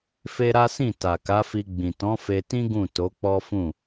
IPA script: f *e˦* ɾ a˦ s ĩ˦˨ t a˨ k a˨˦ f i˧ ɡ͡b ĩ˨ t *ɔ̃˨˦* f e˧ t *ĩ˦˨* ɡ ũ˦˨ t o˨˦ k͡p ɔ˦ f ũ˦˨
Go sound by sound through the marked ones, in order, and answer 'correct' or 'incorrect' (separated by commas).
correct, correct, incorrect